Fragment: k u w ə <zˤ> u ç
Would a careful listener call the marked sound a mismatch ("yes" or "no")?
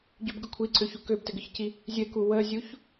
yes